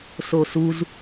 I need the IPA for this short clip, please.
s o s u z

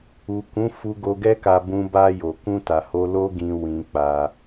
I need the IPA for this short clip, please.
u˨ k ũ˨˦ f u˧ ɡ o˧ ɡ ɛ˦ k a˧ b ũ˧ b a˧ j o˨ k ũ˧ t a˨ h o˧ l o˦ ɡ ĩ˧ w ĩ˧ k͡p a˧

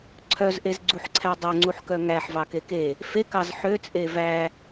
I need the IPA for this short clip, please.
ǀʰ œ z ʔ e z ɡ͡ǀ u ħ ǀʰ æ dˤ ɵ ŋ͡ǀ u ħ k œ ŋ æ ħ v ɑ k e k e | f e k ɑ z ħ ø t͡sʼ e v æ

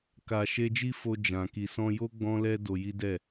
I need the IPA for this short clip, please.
k a˨ ʃ e˧ d͡ʒ i˦ f o˧ d͡ʒ ã˨ k i˨ s ɔ̃˧ j o˦ ɡ͡b ɔ̃˦ l ɛ˦ d o˧ j i˦ d ɛ˦˨

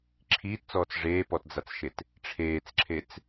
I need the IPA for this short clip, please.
ǁʰ iː t t͡s ɔː t͡s ʐ eː p ɔ t d͡z a t͡s ʃ e t | ʈ͡ʂʰ eː t͡s ǁʰ e t͡s

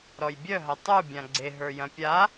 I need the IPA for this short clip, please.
ɾ ɔ j bʲ œ ɦ ɐ tˤ u bʲ ã ɡ͡ǀ e ɦ ə˞ j ɐ̃ pʲ a

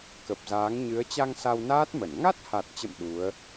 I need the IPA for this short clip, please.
k ə˨˩ p̚ z aː˨˦ ŋ ɲ ɨ˨˦ ə̯ t͡ɕ a˧ ŋ s a˧ w n aː˦˥ t̚ m ə˧˩ n ŋ a˦˥ t̚ h a˨˩ t̚ t͡ɕ ə̰˧˨ m ɗ u˨˦ ə̯

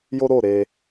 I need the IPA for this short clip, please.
j o˦ ɾ o˦˨ ɾ e˧

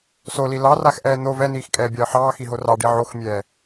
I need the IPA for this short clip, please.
s o l i l ɑ r a x ʔ ɛː n̪ o v ɛ n iː x kʼ ɛː bʲ ɑ ə̯ ħ ɑː x i ɦ o r ɑ ɖ i ʕ o x mʲ ɛː

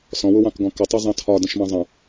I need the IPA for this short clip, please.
s ɔ̃ w ʊ w ɑ̃ k ɡ ɔ̃ k ə tˤ ʌ zˤ ɑ̃ tʰ ɒ d ə̃ ʃ m ɑ̃ zˤ ə̃

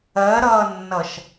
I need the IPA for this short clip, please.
ɜ ɾ ʌː nː ʌ ʃ

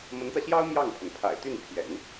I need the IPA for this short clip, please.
m ə˧˥ n t̪ ä˧ ɕ j ɑ˥ ʊ̯ m j ɑ˥˩ ŋ pʰ ə˩ n pʰ a̰˨˩ ɪ̯ t̪ y˥˩ n pʰ j ɛ̰˨˩˦ n

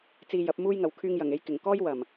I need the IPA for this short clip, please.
t͡s iː˧ j ɐ˨˥ p̚ m uː˥ j ŋ ɐ˨ w kʰ yː˧ ŋ j ɐ˨˩ ŋ e˧ j k ɪ˨˩ ŋ k ɔː˥ j w ɐ˨˩ m

